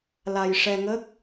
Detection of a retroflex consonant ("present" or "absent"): present